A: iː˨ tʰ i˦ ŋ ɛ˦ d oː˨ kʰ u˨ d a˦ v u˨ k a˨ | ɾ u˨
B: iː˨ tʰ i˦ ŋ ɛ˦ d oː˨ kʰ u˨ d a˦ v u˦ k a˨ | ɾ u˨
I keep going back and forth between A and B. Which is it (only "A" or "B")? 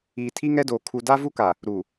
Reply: B